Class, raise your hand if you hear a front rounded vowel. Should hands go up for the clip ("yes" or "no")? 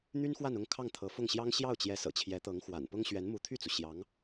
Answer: yes